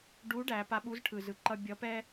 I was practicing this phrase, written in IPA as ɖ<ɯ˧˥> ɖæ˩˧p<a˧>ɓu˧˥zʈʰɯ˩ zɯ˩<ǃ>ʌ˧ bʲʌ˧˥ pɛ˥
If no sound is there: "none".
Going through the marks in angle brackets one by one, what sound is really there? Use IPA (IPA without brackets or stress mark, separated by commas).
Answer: u˧˥, a˧, ǃ